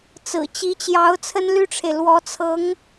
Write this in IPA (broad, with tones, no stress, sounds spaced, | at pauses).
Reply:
t͡s ɹ̩˨˩ t͡ɕ i˧˥ t͡ɕ j ɑ˧˥ ʊ̯ t͡sʰ ə˥ n l y˥ ʈ͡ʂʰ e˨ ɪ̯ l w ɔ˧˥ t͡sʰ ɤ˧˥ ŋ